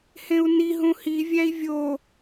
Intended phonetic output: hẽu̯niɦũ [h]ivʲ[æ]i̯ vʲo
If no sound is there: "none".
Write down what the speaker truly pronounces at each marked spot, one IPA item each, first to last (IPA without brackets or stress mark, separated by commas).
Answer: h, æ